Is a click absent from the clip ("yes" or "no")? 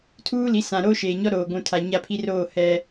yes